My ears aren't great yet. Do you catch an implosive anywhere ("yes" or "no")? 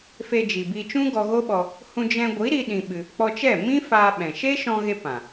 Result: yes